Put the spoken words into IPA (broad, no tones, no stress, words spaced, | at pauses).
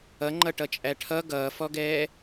ʌ ŋ͡ǃʌʈʌt͡ʃʼæʈʰʌ ɡʌːfɔɡɛː